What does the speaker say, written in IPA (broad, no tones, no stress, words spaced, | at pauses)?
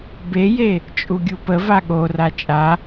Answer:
beje | t͡ʃʼuɡʲupəva ɠora t͡ʃʼa